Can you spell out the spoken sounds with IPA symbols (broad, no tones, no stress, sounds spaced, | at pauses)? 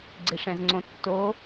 ɡ͡ǀ e ʂ ɛ̃ z ŋ͡ǀ õ tː o